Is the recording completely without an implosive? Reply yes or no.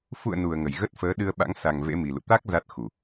no